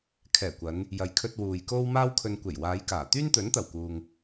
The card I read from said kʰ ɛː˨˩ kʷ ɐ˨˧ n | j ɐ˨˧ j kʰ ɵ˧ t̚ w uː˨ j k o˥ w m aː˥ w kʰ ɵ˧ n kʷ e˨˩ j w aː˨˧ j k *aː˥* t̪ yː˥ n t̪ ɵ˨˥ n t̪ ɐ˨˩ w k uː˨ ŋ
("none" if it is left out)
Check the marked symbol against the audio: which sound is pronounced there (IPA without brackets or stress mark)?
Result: aː˨˩